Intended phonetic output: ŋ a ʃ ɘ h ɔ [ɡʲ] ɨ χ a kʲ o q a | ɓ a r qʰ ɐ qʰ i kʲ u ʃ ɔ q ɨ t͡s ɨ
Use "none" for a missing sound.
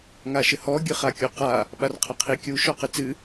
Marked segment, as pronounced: ɡʲ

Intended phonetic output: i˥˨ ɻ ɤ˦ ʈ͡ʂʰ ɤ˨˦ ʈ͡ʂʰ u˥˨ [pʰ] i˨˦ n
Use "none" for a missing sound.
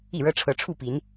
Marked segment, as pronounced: p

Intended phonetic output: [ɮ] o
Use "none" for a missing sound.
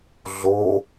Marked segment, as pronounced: ɮ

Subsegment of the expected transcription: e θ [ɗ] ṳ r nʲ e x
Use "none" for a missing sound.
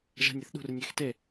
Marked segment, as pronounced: ɗ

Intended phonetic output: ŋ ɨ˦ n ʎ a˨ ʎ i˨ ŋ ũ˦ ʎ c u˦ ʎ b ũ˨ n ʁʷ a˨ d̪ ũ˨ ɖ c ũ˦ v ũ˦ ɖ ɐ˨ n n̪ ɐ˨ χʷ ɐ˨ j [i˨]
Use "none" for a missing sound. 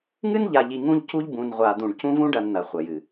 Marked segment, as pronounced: ɨ˨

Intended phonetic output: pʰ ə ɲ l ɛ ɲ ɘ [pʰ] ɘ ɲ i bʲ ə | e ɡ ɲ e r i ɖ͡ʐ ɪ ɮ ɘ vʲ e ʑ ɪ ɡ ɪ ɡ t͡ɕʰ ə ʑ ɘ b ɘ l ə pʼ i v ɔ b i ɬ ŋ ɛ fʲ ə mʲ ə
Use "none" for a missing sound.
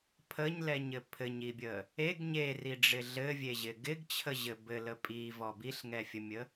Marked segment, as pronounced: pʰ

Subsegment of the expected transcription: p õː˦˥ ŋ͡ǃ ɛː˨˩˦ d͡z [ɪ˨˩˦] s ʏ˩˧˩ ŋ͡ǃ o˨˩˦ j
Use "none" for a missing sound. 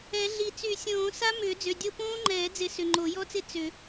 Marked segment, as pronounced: ɪ˨˩˦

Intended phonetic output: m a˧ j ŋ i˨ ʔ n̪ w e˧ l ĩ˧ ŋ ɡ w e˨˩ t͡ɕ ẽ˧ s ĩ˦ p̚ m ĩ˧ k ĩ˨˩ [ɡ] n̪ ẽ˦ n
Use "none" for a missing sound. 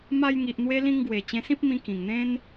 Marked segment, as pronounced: ŋ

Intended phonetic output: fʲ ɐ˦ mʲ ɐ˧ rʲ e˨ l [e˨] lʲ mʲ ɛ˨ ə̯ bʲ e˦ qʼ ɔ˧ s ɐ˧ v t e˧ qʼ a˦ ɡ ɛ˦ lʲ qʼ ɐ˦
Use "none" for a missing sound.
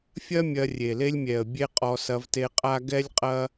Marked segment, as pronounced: e˦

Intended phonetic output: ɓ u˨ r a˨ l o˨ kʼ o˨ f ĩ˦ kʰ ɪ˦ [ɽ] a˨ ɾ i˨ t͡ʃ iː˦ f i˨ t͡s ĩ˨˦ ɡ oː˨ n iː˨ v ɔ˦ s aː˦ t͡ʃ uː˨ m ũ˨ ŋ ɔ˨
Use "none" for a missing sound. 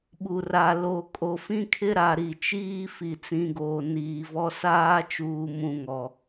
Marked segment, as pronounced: ɾ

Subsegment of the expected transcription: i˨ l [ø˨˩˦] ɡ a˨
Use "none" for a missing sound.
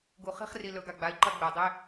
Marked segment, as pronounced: ɵ˨˩˦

